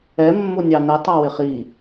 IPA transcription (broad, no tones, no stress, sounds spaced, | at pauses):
ɛ mː ʊ nʲ ɑ n ɛ tˤ ɑ w ɪ χ i